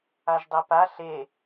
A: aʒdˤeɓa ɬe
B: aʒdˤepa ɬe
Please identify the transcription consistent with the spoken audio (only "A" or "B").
B